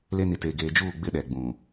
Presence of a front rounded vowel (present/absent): absent